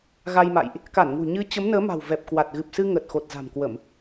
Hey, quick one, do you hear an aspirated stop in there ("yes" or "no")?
no